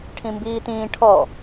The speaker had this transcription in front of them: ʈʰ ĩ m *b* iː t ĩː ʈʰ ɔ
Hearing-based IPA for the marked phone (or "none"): b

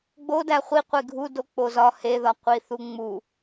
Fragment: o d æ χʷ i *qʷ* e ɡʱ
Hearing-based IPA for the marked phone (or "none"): qʷ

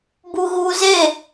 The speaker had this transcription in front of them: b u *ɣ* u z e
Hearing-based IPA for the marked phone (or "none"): ɣ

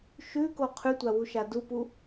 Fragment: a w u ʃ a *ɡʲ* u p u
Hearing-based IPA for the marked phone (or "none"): d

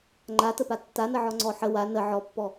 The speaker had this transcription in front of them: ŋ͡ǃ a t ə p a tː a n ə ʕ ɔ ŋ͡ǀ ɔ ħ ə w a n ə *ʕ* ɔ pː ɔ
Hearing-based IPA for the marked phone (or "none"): ʕ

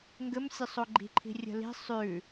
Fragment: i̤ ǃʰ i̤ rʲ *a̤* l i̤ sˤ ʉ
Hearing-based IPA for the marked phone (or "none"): ə̤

